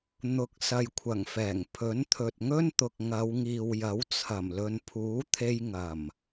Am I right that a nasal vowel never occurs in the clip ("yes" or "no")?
yes